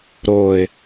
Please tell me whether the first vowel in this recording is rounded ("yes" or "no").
yes